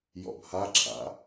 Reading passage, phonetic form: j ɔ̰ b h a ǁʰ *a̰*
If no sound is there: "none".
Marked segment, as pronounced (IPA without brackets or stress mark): a̰